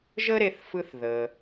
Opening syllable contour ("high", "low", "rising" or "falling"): high